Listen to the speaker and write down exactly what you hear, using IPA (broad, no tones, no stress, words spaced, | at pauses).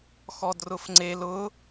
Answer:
xɔdrʊfŋ͡ǀel ʊ